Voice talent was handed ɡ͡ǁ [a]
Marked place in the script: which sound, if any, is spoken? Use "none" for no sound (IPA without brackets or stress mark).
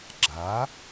a